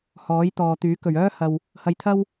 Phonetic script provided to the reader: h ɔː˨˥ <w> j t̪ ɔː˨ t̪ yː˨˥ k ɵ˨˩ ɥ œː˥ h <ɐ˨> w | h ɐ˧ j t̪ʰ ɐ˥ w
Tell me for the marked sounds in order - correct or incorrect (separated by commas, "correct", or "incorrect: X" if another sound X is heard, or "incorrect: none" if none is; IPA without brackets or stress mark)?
incorrect: none, correct